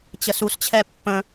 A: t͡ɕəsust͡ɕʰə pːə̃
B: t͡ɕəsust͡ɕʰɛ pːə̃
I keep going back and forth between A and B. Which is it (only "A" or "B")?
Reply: B